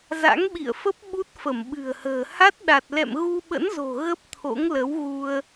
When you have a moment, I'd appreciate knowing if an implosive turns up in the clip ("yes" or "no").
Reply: yes